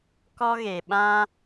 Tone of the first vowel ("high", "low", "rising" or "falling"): high